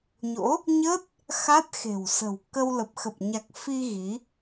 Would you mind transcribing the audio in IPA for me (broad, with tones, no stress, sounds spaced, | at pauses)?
ɲ o̰˧˥ | ɲ ə˦˥ t̚ | x a˦˥ t̚ x e̤˨˩ w s ə̤˨˩ w k ə˧ w l ə˨˩ p̚ x ə˨˩ p̚ ɲ a˨˩ k̚ f i˧ ɣ i˨˦